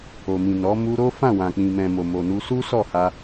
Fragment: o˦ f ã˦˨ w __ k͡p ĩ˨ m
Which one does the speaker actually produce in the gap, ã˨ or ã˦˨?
ã˨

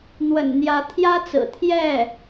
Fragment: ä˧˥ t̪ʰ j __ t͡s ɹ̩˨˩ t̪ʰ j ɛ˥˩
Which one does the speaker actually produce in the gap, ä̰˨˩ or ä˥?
ä˥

